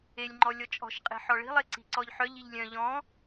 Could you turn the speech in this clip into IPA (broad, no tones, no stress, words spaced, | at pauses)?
elʲŋ͡ǃɔlʲɔ t͡ʃʼɔ̤ʃ qʼe̤ħɔɭi̤lˠ eǀi̤ǀɔʎħœʎ iʎlʲœ̃ ʎɔ̃